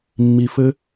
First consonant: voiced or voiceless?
voiced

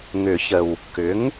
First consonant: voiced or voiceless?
voiced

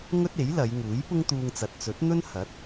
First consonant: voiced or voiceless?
voiced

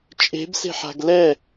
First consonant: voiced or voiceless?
voiceless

